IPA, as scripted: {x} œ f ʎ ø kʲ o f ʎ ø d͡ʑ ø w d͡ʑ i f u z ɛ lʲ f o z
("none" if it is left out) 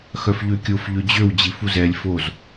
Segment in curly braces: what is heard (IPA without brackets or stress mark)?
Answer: x